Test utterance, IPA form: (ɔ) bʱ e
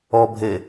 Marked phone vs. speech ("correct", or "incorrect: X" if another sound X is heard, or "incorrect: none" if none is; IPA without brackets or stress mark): correct